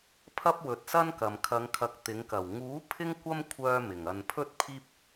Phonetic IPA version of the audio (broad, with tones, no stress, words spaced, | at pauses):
pʰɐ˥p̚wɵ˨˥t̚sɐ˥nkɐ˨m kʰɐ˨˧ŋkʰɐ˨˥k̚ t̪ɪ˨˥ŋkɐ˨˩w ŋuː˨˥ pʰɪ˥ŋkʷɐ˥mkʷʰœː˧ mɪ˨˩ŋɐ˧n pʰɵ˥t̚pʰiː˥p̚